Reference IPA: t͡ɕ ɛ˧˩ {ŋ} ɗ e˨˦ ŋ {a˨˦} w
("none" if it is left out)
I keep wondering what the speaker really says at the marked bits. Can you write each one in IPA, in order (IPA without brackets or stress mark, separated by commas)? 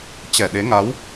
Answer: none, a˨˦